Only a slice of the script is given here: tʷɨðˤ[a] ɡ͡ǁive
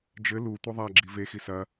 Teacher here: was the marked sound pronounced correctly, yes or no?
yes